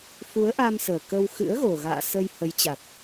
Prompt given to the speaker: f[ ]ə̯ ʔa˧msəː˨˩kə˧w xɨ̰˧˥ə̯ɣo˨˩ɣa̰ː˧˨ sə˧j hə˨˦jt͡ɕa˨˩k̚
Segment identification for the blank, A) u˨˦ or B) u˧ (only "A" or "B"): A